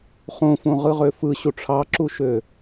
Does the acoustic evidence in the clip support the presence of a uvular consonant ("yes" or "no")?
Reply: yes